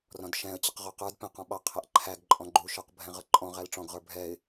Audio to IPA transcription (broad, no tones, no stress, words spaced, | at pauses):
rɔ̃dʃɛ̃ə̯t͡ɕəq ʁɔqə˞d pɛ̃qɔ̃ɓɑqʰæʔ ǃʰæɡǃʼɔ̃ ɡ͡ǃuʃə˞qbʱɛ̃ ʁʌǃʼɔ̃ʁæl ʈ͡ʂɔ̃ɡʁə˞ bʱɛɪ̯